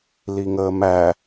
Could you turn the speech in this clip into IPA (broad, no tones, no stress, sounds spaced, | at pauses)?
l i ŋ əː m æ